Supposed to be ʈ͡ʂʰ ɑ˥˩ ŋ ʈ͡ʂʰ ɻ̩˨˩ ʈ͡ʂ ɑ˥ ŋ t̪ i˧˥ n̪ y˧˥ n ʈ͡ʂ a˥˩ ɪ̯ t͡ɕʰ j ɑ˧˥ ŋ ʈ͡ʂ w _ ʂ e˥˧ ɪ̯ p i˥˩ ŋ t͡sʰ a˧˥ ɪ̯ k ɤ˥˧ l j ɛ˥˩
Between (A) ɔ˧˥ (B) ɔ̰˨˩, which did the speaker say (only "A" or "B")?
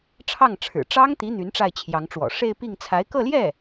B